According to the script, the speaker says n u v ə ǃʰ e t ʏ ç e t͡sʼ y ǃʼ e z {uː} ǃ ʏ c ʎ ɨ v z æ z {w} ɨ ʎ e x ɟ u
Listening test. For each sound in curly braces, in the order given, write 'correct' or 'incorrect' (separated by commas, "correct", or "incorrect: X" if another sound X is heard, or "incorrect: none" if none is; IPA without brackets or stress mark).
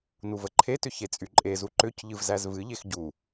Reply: incorrect: u, incorrect: v